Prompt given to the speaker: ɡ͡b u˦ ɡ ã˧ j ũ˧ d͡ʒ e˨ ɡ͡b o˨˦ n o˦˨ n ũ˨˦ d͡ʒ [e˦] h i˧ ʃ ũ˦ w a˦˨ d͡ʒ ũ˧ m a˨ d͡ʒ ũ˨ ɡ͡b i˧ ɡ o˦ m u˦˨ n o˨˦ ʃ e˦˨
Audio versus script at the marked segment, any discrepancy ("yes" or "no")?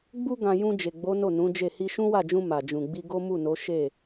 yes